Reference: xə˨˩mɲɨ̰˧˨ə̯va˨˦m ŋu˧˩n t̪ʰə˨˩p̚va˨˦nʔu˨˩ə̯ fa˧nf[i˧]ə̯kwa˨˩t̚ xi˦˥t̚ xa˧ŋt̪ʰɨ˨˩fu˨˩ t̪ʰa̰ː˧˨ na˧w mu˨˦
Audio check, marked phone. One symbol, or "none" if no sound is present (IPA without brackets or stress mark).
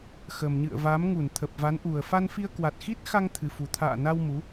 i˧